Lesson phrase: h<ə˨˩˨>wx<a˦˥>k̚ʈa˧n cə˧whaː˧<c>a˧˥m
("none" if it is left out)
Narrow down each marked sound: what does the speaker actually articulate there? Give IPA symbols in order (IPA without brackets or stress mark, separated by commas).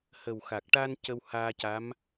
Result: ə˨˩, a˨˩, c